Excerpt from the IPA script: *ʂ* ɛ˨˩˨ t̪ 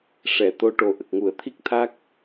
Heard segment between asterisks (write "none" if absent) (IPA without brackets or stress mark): ʂ